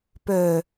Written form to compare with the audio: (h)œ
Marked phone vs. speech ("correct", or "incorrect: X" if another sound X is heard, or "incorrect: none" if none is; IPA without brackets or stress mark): incorrect: p